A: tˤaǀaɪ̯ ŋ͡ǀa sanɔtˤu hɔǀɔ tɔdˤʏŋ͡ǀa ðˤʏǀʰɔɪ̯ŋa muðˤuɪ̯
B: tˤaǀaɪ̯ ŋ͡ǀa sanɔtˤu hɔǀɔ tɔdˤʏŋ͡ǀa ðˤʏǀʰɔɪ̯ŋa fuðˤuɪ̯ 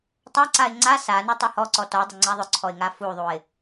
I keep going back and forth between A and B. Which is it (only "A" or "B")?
B